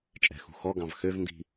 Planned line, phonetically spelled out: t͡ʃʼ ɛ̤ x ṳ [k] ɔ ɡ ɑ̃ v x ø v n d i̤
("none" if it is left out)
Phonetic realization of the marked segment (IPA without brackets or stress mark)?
x